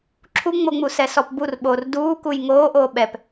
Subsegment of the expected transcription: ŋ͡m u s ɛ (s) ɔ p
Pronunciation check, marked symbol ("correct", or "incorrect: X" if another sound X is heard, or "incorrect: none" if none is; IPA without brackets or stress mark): correct